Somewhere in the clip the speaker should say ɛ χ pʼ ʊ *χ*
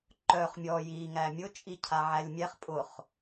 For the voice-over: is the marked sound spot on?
yes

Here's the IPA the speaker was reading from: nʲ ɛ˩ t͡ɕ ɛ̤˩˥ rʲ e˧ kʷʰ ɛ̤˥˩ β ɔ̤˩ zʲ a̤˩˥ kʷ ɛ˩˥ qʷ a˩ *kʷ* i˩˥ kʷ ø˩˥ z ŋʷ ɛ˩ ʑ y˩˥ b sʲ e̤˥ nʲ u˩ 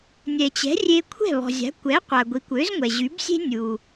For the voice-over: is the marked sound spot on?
no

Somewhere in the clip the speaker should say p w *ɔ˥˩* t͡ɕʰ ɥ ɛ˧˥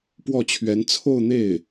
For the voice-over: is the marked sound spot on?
yes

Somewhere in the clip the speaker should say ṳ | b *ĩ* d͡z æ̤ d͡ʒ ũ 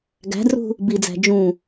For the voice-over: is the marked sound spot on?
no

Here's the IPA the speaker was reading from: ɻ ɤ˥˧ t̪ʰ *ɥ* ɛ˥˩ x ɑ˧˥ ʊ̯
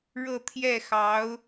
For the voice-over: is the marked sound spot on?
no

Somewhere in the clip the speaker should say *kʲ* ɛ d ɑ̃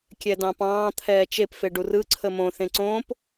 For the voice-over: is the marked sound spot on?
yes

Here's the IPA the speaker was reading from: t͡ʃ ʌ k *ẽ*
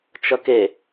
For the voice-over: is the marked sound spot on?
no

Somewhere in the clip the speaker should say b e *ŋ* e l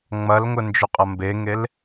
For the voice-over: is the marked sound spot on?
yes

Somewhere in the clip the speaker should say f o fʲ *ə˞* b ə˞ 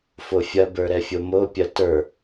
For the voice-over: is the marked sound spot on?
no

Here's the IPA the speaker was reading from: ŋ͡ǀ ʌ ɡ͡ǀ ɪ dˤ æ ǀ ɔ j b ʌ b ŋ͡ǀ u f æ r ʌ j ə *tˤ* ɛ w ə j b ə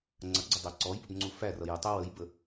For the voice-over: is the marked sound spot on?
yes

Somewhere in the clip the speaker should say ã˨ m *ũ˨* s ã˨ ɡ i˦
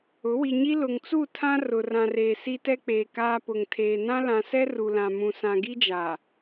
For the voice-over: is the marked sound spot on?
yes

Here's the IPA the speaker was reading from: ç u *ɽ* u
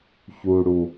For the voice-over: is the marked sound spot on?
yes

